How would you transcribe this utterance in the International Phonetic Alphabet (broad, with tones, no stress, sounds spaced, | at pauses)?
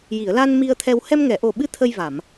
j i˨˩˨ ə̯ l a˧ n m i˧ ə̯ t̪ʰ ɛ˧ w h ɛ˧ m ŋ ɛ˨˩˨ ʔ o˨˩ ɓ ɨ˧˥ t̪ʰ ə˧ j v a˨˩˨ m